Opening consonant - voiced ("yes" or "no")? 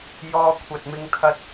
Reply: yes